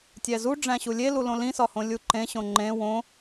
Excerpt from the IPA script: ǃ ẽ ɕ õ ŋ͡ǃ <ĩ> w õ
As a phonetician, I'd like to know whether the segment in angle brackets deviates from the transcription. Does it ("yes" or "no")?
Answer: yes